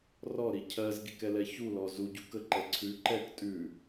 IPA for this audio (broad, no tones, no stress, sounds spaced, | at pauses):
r ɔ ɾ i cʰ ɜ z ɡ i k ɛ l ɛ ç u l ɔ z u ɟ u k ə ǃ ɛ ǀʰ ʉ ǃ ɛ k tʼ ʉ